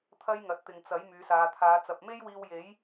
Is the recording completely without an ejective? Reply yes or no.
yes